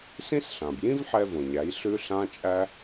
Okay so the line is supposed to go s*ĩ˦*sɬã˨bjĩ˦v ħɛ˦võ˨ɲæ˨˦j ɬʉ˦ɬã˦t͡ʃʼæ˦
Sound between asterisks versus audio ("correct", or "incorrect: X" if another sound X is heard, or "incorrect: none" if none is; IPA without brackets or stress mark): correct